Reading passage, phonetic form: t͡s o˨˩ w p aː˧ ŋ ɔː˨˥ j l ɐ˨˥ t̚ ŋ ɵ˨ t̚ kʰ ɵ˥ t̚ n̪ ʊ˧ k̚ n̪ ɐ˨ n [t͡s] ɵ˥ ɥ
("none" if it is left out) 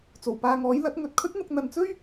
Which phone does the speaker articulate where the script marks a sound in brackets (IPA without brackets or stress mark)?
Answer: t͡s